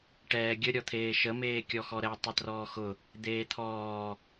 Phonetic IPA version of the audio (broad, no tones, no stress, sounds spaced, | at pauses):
ʈ ɛː ɡʲ ə ɾʲ ɔ t̪ʰ eː ʃ ə m eː kʲ ɔ x ɔ ɾ ɛ tˤ ʊ t r ɔː x ʊ | d̪ eː t̪ʰ ɔː